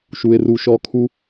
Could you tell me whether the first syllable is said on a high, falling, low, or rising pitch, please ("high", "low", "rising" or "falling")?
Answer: low